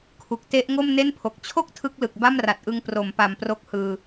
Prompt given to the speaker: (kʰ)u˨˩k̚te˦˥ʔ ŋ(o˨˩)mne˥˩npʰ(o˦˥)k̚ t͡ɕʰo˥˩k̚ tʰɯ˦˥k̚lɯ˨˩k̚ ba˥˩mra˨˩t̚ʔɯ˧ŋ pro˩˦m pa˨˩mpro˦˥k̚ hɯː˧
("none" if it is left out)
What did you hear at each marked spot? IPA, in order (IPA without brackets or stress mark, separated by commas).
kʰ, o˥˩, o˨˩